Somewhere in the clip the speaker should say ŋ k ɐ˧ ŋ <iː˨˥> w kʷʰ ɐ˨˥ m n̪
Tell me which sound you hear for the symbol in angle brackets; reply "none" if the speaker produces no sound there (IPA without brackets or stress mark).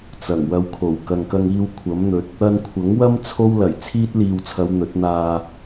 iː˧